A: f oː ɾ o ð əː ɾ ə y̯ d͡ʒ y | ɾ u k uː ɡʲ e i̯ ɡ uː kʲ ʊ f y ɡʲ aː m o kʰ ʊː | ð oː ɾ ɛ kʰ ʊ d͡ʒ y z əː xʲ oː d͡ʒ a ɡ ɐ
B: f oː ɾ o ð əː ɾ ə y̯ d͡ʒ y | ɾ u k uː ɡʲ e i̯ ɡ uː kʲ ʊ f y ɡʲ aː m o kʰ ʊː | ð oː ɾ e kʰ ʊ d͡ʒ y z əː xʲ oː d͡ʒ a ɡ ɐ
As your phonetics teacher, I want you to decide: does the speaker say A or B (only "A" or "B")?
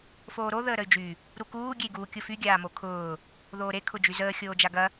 B